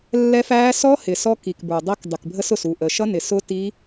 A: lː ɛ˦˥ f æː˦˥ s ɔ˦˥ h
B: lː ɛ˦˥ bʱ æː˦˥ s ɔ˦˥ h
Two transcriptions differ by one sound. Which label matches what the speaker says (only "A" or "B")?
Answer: A